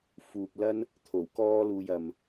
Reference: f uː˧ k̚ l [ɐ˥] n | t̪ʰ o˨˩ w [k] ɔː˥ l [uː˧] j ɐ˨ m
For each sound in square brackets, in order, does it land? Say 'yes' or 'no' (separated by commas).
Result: yes, yes, yes